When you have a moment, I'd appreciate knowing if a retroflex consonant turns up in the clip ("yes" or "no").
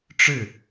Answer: yes